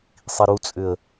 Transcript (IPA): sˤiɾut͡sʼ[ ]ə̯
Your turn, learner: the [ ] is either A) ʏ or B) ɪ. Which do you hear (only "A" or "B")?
A